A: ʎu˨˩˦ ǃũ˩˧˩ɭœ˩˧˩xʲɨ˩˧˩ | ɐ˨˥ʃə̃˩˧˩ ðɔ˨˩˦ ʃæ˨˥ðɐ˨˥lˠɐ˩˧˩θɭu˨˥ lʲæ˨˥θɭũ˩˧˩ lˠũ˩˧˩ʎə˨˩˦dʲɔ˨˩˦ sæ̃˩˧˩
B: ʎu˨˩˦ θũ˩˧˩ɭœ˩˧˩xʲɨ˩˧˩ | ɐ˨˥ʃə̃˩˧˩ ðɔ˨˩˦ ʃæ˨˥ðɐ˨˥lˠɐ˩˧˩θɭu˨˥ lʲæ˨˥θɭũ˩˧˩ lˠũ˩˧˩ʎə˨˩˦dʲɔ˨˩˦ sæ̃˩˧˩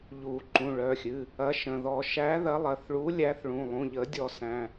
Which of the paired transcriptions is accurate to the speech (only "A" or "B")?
A